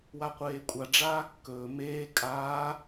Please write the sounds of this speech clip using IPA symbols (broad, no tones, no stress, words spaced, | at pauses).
waqʷeːkʷʼa ɖ͡ʐaːkːɵː meː kʼaː